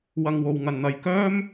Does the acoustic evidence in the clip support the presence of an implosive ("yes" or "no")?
no